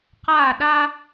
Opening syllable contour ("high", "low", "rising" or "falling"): falling